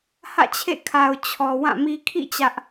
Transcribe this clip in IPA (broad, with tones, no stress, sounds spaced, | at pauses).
h ä̰˦˨ t͡ɕʰ ḛ˦˨ kʰ a˨ ʊ̯ t͡ɕʰ ɔ˨ w ã˦˨ m i˦ kʰ ḭ˦˨ t͡ɕ ä˦ ʔ